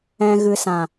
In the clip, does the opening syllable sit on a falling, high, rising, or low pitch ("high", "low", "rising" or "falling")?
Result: low